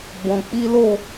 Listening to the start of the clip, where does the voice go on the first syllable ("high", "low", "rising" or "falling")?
low